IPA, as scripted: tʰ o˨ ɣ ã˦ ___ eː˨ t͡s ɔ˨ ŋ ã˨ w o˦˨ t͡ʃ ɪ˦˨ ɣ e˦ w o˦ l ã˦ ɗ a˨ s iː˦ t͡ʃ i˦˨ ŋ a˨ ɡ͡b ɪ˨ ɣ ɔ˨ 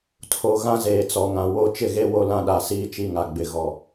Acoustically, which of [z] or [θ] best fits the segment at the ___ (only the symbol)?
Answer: z